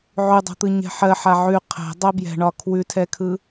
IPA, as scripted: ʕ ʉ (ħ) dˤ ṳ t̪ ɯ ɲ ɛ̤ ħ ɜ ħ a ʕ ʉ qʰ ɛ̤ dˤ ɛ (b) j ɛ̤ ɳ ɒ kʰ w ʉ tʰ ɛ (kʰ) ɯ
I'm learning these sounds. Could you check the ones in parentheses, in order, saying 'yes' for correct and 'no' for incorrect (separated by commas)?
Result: no, yes, yes